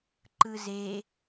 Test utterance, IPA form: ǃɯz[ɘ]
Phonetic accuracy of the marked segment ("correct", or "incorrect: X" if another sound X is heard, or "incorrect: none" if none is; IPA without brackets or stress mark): incorrect: e